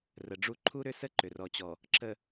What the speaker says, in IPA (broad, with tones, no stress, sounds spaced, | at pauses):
r ə˨ ɖ͡ʐ u˦ ǃʰ u˦ ɾ ʏ˦ s ə˦ ǃ ʏ˨ r ɔ˨ t͡ɕ ɔ˨ | ǁ ə˨